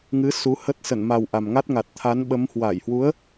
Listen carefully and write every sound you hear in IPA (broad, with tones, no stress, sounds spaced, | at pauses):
ŋ ɨ˨˦ s u˨˦ h ə˦˥ t̚ s ə˧˩ n m a˨˩ w ʔ a˨˩ m ŋ a˦˥ t̚ ŋ a˨˩ t̚ t̪ʰ a˨˦ n ɓ ə˨˦ m h w a˧˩ j h w u˨˦ ə̯